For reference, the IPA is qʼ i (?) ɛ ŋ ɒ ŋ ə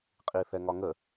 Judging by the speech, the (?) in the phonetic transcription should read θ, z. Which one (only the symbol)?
θ